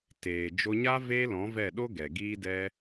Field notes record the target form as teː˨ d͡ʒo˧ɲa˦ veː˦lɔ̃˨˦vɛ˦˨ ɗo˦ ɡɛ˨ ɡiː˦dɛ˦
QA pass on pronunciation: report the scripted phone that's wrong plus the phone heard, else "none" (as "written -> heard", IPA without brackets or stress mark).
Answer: none